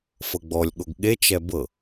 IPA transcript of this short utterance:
f ɤ ɡ͡b ɔ lʲ ɠ o ɡ ɠ e t͡ʃ ɛ b ɤ

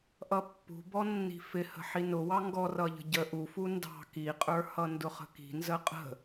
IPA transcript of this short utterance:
ʔ ʌ pː ṳ b ɔ nː i̤ f ɪ h ə̤ ħ i n ʊ w ɑ ŋ ɡ ɔ r ʌ ʎ ə̤ ɟ ə ʔ u f u n d ɑ̤ k i qʼ ə˞ h ʌ n d ʊ χ ə̤ k i̤ n z ə qʼ ə̤

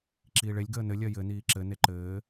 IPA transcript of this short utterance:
ǁ iː ɭ e lʲ ɡ əː n ɘ lʲ ɜ j ɘ n iː ǁ ɘ n e ǃ ɘː

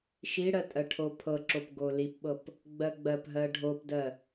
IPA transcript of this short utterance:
ʃ i ɽ ɜ tʼ ɜ ʈʰ o pʰ ɤ ǁ o p ɡ o l i p ɓ ɤ p | ɡ͡b ɜ ɡ͡b ɜ p ɦ ɜ ɖʱ o p d ɜ

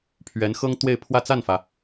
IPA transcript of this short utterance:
pʰ ɥ ɛ˧˥ n x ɤ˥ ŋ t̪ w e˥˧ ɪ̯ pʰ w ä˥˧ t͡s a˥˩ n f ä˩

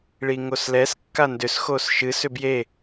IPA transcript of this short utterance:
ɭ i ŋ o s l ɛ s kː a n d ʏ s x o s ʃ ɨ s ʏ b j e

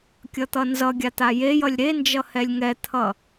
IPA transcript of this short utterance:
kʲ ʌ t̪ ʌ n z ʌ ɡʲ a t̪ a j e j ʌ lʲ ɾ e n d͡ʒ ʌ h ɛ lʲ ŋ ɛ t̪ʰ ʌ

